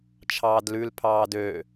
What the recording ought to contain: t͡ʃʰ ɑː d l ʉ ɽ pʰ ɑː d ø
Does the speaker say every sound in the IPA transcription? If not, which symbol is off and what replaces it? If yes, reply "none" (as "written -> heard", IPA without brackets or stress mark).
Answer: ɽ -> l